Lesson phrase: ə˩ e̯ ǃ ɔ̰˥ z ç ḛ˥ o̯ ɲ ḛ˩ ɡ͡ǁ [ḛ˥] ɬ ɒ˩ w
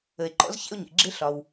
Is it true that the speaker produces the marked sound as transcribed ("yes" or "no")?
no